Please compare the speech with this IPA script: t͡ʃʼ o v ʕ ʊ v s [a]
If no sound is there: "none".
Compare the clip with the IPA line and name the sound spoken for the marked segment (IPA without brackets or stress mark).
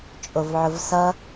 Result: ʌ